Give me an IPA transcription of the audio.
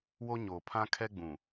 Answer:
w o˦ ɲ oː˨ pʰ ã˦ kʰ ɛ˦ ɡ͡b ũ˨

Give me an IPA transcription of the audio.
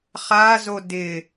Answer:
χ a z o d ɪ

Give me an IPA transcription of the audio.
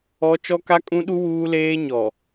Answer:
ɔ˦ t͡ʃ ɔ˦ k a˦ kʼ ũ˦ ɗ u˦ w uː˦ l eː˦ ɲ ɔ˨

